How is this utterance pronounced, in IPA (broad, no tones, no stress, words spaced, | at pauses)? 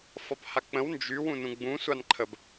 fɒphak͡pə̃w nd͡ʒy wũnũɡ͡bũ sʷanǃʰəb